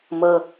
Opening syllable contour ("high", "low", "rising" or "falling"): high